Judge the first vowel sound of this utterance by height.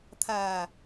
low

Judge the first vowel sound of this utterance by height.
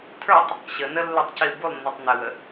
mid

